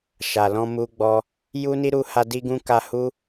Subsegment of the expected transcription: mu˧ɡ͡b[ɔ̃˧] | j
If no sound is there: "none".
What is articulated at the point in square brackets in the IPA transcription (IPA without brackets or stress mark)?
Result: ɔ˧